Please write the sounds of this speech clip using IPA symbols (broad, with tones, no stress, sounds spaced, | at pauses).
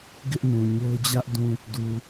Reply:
ɡ ɪ˦ ʔ n ũ˨ ɲ o˦ ʊ̯ d͡ʑ ä˦ ʔ d ũ˨ | d u˨